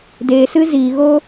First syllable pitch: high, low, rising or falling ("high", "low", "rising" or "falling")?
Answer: low